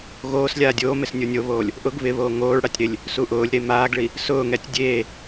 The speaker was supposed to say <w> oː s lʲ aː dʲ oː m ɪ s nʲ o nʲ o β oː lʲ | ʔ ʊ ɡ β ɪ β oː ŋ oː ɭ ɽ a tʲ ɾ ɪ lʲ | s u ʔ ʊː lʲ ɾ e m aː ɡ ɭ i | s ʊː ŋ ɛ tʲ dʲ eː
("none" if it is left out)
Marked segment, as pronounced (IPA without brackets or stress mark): ɣ